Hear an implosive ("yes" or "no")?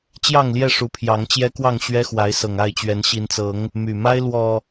no